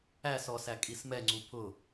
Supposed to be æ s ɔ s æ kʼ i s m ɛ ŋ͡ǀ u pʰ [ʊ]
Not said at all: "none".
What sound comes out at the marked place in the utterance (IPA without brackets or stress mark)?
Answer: ʊ